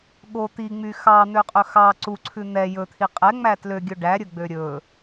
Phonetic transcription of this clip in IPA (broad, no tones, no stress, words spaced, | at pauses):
ɠo t̪iŋ͡my xɑn̪øqʼɵ xɑ ǀuǀʰʉ n̪ɛ jɵt̪ʰi qʼɛŋ͡mæ tløɡʲɵ ɖæɾʲɵɡ͡bø ɾʲɵ